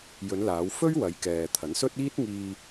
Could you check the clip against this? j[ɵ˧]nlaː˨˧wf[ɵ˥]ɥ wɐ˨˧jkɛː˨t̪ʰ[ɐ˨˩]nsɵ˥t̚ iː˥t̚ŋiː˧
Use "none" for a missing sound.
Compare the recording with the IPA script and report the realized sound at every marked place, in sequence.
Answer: ɵ˨˧, ɵ˥, ɐ˨˥

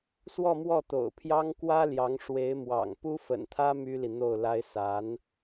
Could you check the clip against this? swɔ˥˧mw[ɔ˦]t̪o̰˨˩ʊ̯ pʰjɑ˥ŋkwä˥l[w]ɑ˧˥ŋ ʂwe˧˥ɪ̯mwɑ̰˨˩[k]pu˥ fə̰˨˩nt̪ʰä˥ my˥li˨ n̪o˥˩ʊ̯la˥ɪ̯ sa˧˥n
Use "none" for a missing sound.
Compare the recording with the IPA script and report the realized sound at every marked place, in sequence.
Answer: ɔ˥˩, j, ŋ

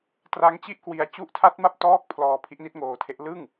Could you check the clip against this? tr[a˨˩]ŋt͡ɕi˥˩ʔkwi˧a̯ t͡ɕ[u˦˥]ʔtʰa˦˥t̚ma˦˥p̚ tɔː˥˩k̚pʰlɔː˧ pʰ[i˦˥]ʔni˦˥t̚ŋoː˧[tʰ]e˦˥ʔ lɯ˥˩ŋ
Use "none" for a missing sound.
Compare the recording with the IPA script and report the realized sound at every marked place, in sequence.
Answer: a˦˥, u˦˥, i˦˥, tʰ

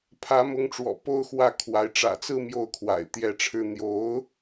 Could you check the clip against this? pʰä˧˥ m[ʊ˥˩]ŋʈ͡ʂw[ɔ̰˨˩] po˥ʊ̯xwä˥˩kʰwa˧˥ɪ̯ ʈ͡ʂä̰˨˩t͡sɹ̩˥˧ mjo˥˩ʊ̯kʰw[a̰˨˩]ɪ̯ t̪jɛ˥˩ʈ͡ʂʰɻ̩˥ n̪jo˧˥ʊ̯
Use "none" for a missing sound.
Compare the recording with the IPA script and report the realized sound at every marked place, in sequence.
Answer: ʊ˧˥, ɔ̰˨˩, a̰˨˩

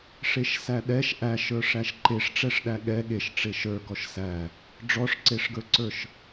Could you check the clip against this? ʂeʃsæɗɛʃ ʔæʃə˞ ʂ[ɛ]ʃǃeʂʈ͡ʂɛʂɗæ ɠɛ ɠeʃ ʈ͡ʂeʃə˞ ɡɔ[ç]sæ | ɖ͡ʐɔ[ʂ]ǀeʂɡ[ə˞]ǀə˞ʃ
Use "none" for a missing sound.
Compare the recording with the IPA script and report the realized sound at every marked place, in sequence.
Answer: æ, ʃ, ʂ, ə˞

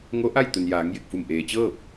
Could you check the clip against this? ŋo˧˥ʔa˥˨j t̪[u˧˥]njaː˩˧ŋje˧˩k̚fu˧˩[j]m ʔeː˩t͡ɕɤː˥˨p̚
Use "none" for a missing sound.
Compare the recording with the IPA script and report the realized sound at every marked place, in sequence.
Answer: u˩, none

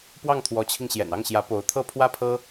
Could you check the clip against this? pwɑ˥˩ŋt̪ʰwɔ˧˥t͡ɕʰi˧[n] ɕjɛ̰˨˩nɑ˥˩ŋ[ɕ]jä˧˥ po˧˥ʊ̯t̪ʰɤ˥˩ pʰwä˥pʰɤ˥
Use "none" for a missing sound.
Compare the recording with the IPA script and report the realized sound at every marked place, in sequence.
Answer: ŋ, ɕ

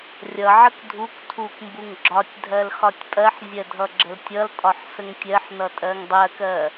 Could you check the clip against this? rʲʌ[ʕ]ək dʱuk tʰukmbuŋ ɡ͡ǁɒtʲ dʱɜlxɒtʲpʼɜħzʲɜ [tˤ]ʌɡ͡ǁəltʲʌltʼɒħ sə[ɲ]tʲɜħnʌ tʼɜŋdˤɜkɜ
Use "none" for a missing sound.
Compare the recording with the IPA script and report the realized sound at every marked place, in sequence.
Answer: ʕ, dʱ, ŋ

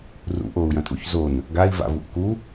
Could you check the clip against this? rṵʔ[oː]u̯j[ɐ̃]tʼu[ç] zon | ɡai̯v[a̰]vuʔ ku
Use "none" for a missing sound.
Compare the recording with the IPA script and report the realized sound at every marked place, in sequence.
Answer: oː, ɐ̃, ç, a̰

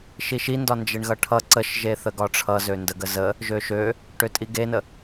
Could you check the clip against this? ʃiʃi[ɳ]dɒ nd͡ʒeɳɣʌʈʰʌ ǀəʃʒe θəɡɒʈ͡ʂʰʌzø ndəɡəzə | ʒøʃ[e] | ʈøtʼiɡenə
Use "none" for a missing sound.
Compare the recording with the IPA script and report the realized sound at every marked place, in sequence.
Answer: n, ø

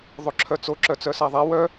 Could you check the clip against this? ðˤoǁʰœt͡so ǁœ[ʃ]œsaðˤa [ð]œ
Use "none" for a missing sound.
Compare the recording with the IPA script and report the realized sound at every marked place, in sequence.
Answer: t͡s, w

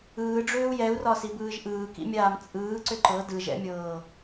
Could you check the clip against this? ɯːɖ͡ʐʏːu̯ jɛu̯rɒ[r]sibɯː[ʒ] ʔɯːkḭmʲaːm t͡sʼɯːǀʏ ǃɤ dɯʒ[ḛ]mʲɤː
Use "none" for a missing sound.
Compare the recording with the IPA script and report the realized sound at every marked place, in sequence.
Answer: none, ʒ, ɛ̰

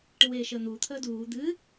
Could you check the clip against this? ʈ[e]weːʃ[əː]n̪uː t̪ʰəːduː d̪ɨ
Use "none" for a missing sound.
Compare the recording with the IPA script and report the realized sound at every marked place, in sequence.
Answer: ɨ, əː

